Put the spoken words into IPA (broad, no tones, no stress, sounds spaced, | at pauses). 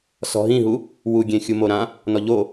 s ɔ̤ ɦ ĩ ɦ u | w u ɡʲ ẽ xʲ u m o ɾ ã | n ɔ ʎ o